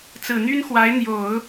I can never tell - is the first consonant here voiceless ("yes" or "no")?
yes